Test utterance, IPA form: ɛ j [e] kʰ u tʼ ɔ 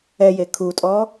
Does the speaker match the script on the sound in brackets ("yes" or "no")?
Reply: yes